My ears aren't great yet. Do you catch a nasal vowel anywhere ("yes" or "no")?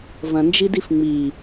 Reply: yes